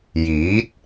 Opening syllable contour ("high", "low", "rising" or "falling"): rising